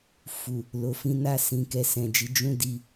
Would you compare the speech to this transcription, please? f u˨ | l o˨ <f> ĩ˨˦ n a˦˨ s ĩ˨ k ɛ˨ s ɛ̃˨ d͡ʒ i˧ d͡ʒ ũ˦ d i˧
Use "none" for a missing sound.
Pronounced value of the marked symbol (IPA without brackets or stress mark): f